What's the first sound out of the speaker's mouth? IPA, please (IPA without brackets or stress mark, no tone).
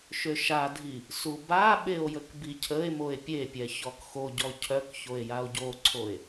ʃ